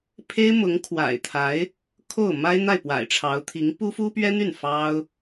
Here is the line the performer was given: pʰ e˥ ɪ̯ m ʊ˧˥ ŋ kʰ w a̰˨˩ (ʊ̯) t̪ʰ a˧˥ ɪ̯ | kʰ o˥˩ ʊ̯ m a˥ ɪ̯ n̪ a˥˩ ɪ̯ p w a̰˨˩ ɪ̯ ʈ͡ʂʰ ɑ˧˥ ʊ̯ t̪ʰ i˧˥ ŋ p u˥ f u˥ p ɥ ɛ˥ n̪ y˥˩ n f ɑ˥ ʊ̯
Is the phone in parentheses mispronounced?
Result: yes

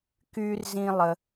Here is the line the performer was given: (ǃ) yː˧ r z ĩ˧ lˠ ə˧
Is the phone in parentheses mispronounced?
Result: yes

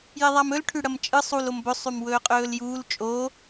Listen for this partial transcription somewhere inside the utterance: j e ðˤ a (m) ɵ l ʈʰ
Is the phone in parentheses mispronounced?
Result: no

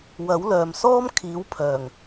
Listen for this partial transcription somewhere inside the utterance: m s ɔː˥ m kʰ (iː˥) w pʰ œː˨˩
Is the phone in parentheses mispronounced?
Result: yes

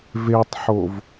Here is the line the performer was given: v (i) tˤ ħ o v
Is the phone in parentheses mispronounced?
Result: yes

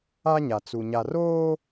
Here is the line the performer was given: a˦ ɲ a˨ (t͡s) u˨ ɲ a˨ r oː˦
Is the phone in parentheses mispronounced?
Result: no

